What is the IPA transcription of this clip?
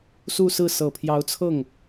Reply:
s u˥˧ s ɹ̩˥˩ s ɤ˨˩ pʰ j ɑ˧˥ ʊ̯ t͡sʰ ɤ˥˩ ŋ

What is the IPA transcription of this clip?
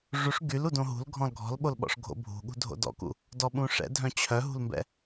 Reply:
ʐ u ʂ ɡ y l u d õ ɦ ṳ l ɡʱ ɔ̃ l ɡʱ ɔ̤ l ɓ o l ɓ ɔ̰ ʂ ɡʱ o̰ bʱ ṳ ɠ ṳ dʱ o̰ d ɔ̰ k ṵ | d ɔ ɓ ũ ʂ ɛ̰ dʱ œ̃ t͡ɕʰ œ ɦ ṳ l m b ɛ̰

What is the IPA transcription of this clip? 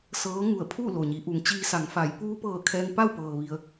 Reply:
s ɤː˧˥ ŋ u˧˩ ə̯ pʰ u˥˨ l o˩ ɲ i˩˧ ʔ u˩˧ ŋ t͡ɕ iː˧ s a˩˧ ŋ f a˩˧ j p uː˧ p ɤː˧˩ kʰ ɛː˧ ŋ p a˥˨ w p ɤː˩ ʋ i˩ ə̯

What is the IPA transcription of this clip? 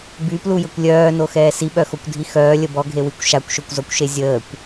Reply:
b y p l u j ə kʷ lʲ œː n o x ɛː s i ɓ œ x o kʷ dʱ i x œː lʲ ə b ɔ ɡʱ e w i kʷ ʃ a kʷ ʃ o kʷ z ɔ kʷ ʃ e zʲ əː kʷ

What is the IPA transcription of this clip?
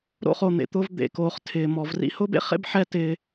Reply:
ɾ o̰˥ χ o˨ n̪ ḛ˨ t̪ ʊː˦ v d̪ ḛ˨ k oː˩ χ tʰ ɪː˩ m ɔ˩ v r ḭ˥ h ʊː˥ b ḛ˥ χ ḛ˥ b ħ ɛ˦ t ɪː˨

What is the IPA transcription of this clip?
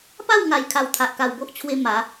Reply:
p a˥˧ w ŋ a˨˩ j kʰ a˨˩ w t̪ʰ a˨ ʔ k a˨˩ w b o˦ ʔ t͡ɕʰ w e˧ m a˨˦

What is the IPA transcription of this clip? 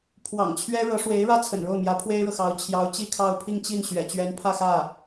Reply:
pʰ w ɑ̰˨˩ ŋ t͡ɕʰ ɥ ɛ˥ ɻ ɤ˧˥ ʂ w e˧˥ ɪ̯ ɻ ä˥ t͡sʰ ə̰˨˩ n ɻ o˥˩ ʊ̯ m j ä˧˥ pʰ w e˥ ɪ̯ ɻ ɤ˨ x ɑ˧˥ ʊ̯ t͡ɕʰ j ɑ˧˥ ʊ̯ t͡ɕ i˥˧ kʰ ɑ˥˧ ʊ̯ pʰ i˥˧ ŋ t͡ɕ i˥˩ n ɕ ɥ ɛ̰˨˩ t͡ɕ ɥ ɛ˧˥ n pʰ ä˥˧ x ä˥˩

